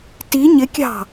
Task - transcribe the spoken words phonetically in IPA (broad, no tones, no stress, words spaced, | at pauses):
ti ɲɪkʲɑ̤